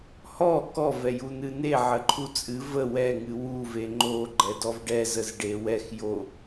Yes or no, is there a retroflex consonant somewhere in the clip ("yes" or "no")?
yes